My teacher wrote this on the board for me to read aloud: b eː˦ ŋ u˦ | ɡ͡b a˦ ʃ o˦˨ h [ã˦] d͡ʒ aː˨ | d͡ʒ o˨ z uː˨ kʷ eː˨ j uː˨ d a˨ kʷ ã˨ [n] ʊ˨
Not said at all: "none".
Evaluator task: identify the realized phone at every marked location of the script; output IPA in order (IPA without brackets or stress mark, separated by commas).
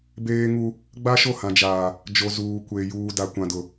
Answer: ã˨, d